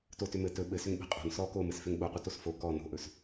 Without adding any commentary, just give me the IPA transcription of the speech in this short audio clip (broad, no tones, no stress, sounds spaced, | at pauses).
t o t ʏ m ɘ t ɵ ɓ ɘ s ʏ ŋ ɓ e̤ qʼ o̤ n s ɔ k o m ɘ s f ʏ ŋ ɓ o qʷ ɘ t o s f o k ɔ n o̤ ʔ ɵ s